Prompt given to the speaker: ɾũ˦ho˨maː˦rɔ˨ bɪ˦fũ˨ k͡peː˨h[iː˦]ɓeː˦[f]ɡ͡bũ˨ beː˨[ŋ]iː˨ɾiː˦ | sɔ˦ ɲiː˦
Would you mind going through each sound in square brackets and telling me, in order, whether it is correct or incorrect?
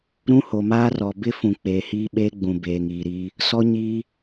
correct, incorrect: none, correct

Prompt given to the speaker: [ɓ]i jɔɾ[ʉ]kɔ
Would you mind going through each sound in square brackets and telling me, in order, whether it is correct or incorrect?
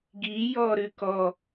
incorrect: ɡ, correct

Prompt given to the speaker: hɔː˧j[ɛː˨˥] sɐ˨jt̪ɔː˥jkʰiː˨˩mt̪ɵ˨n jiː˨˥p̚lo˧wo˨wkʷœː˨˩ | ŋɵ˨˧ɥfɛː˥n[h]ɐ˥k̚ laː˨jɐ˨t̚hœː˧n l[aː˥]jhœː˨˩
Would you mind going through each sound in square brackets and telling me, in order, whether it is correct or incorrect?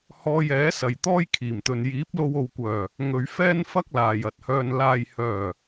correct, incorrect: f, incorrect: aː˨

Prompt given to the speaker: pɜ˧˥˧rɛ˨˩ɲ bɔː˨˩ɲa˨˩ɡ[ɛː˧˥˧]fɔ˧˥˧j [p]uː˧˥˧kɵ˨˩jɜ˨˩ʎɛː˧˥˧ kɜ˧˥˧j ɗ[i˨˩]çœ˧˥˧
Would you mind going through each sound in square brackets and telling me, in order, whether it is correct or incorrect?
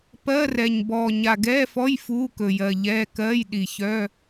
correct, incorrect: f, correct

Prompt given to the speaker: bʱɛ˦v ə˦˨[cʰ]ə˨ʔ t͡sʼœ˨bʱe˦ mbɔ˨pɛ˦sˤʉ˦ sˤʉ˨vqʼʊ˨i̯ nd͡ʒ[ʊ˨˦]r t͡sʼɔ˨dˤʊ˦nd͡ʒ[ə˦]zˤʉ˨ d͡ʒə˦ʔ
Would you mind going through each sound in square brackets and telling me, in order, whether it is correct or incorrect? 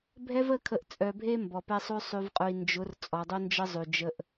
incorrect: kʰ, correct, correct

